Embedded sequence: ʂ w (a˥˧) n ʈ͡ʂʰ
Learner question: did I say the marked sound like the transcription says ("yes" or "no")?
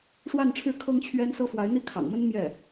yes